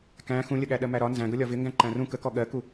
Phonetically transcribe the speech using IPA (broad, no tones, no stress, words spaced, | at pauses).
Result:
kæ̃ xũlʲəɠæ ɗɜmæɾɒ nzæ̃ɡʌ lʲɒvɪ ŋɡæ̃ǃæ̃rũ kəkɔ ɠɜku